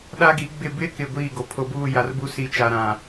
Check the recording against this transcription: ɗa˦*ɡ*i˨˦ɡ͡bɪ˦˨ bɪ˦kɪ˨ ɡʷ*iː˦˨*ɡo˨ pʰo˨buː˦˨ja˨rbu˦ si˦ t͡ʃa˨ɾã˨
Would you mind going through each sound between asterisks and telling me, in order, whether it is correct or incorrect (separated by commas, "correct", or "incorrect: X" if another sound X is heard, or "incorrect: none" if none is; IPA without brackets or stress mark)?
correct, correct